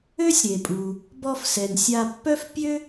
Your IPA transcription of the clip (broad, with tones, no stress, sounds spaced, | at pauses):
ø˥ sʲ ɾ e˩ pʼ u˩ | b ɔ˧ f s ɛ˩ n sʲ a˧ pː œ˥ f pʲ ø˥